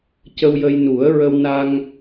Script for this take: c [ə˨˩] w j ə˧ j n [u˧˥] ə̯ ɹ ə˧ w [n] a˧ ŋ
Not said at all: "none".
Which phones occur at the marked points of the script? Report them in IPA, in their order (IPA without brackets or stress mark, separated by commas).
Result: ə˧, u˨˩˦, n